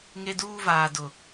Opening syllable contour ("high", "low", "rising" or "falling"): high